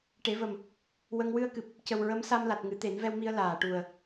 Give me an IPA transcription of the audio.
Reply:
ʈ e˨˩˦ v ə˨˩ m | w ə˧ ŋ w ɨ˧ ə̯ k ɨ˨˩ p̚ | c ə˨˩ w ɹ ə˧˥ m s a˧ m l a˨˩ t̚ ŋ ɨ˨˩˦ t̪ e˨˩˦ n v ɛ˧ w m i˧ ə̯ l aː˨˩˨ ʈ u˨˩ ə̯

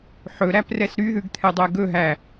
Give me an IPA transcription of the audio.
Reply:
ħ ɵ ɾ æ p r ɛ s ɾ y ð ʉ ɡ t̪ʰ ɛ dˤ ɛ ɡ ɵ ɦ æ

